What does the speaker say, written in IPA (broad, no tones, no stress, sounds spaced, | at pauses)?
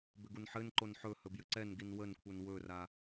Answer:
b ʏ ɡ u n ħ ɘ n ǃ o n ħ ɵ h ɵ b j ɘ ǀ ɛ n ɡ i n w ə n kʷʰ ɛ n w ɵ r a